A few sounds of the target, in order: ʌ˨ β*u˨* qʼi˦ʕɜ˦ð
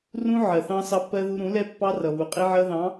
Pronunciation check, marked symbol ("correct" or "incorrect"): correct